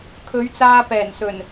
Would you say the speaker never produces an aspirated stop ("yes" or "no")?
no